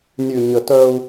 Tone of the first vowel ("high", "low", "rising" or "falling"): low